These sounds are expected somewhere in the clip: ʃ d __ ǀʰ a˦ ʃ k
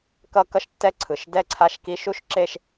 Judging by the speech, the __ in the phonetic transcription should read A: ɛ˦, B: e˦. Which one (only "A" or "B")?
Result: A